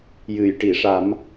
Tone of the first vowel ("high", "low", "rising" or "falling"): low